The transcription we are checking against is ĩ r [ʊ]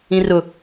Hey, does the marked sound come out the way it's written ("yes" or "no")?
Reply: yes